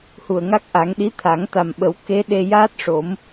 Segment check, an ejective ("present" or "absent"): absent